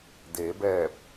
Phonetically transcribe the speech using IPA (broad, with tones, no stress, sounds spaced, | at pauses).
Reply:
d eː˩˧ b ɛː˧˩ p̚